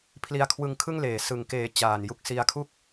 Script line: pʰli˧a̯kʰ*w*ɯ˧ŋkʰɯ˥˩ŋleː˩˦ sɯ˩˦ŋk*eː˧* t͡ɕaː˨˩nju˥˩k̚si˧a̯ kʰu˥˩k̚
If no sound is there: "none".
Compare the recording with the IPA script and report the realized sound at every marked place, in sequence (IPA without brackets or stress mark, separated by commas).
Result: w, eː˨˩